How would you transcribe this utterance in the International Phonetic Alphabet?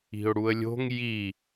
i̤ ʊ̯ ɽ u ə̯ lʲ o̤ ŋ j i

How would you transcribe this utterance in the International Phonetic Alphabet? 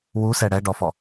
w u s ɛ ɽ ɛ ɖ ɔ f ɔ

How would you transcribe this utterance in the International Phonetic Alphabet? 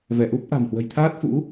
v ɛ˧˩ ʔ u˦˥ p̚ ʔ a̤˨˩ m h w ə̤˨˩ j t̪ʰ aː˦˥ t̚ f ṵ˧˥

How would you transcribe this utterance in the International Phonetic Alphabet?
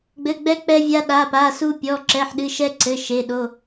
ɡ͡b ɘ˧˥˧ ɡ͡b ɛ˥ k͡p ɛ˥ vʲ a˥ ɗ a˧˥˧ p a˧˥˧ s u˥ pʲ ɔ˧˥˧ ǁ ɛ˧˥˧ ħ ɗ ɨ˧˥˧ ʃ ɛ˥ ǀ ɘ˧˥˧ ʃ e˧˥˧ ɗ o˧˥˧

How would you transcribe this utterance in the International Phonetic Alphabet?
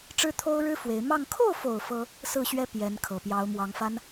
ʈ͡ʂ ɻ̩˥ t̪ʰ o˥ ʊ̯ ɻ ɻ̩˥ f w e˧˥ ɪ̯ m ɑ˥˧ ŋ kʰ o˥˩ ʊ̯ f o˨˩ ʊ̯ f ɤ˥ | s ɹ̩˥˩ ɕ ɥ ɛ˥ p j ɛ˧˥ n kʰ ɤ˨˩ p j ɑ˧˥ ʊ̯ m w ɑ˧˥ ŋ f a˥ n

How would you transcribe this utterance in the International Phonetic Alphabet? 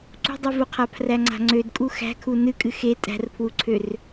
ǀ ṳ dˤ u v u qʰ a pʰ r æ ŋ͡ǀ a̤ ŋ͡ǀ ø d kʼ u x æ̤ kʰ u n ɨ kʼ ɨ x e tʼ æ̤ r pʰ w u ǀʰ ø r

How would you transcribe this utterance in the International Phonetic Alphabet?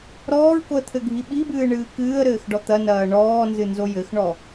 ɾ ɔː ɹ k o ə̯ t̪ʰ ɘ ɡʱ i ɓ i b ɨː ɳ ɨː k ɨː ə̯ ɾ ɘː x ɖ ɔ t̪ ɐ n ɐː ɳ ɔː n z ɨ n z o j ɘ x ɳ ɔ

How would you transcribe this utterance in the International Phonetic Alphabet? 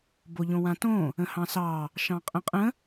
b o ʎ õ w ã t õ | ə̃ h ɑ̃ s ɑ | ʃ ɑ̃ qʼ ə̃ qʼ ə̃

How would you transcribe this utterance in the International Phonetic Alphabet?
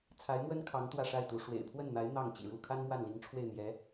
t͡sʰ a˧˥ ɪ̯ m w ə˥ n kʰ ɑ˧˥ ŋ t̪ w ä˥˧ ʂ a˥˩ ɪ̯ t̪ u˧˥ ʂ w ḛ˨˩ ɪ̯ pʰ w ə˥˩ n n̪ a˧˥ ɪ̯ n̪ ɑ˥˩ ŋ t͡ɕ ḭ˨˩ ɻ u˥˩ kʰ a˥ n m w a˥˩ n l i˧˥ ŋ ʈ͡ʂʰ w e˥˩ ɪ̯ n̪ j ɛ˧˥

